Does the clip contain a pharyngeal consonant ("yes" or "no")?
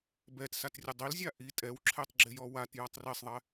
no